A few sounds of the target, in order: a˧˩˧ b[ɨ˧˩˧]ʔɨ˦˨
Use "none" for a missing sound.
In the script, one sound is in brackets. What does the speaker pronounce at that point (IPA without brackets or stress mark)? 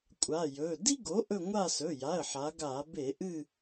e˧˩˧